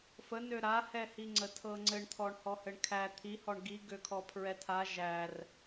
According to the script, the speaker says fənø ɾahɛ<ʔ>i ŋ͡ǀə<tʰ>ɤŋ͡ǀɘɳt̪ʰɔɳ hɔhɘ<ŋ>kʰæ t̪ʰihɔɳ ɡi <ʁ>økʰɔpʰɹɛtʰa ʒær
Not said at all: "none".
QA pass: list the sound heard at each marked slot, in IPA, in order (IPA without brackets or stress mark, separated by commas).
h, tʰ, ɳ, ɡ